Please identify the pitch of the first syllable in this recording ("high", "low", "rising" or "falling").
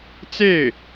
falling